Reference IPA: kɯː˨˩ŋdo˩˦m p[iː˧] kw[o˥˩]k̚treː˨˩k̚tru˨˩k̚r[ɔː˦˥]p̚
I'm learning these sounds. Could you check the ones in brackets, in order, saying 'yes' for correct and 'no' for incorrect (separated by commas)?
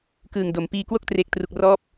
yes, yes, yes